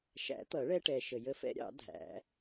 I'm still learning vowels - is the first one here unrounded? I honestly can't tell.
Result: yes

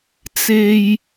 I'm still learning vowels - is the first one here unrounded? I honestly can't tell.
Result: yes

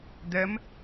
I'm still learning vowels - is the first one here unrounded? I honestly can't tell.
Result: yes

